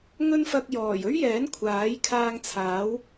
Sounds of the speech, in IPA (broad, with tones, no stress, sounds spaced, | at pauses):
ŋ ɵ˥ n f ɐ˧ k̚ j ɔː˨˩ j ɵ˥ ɥ j ɛː˨˥ n kʷʰ aː˨˥ j kʰ aː˧ ŋ t͡sʰ aː˨˥ w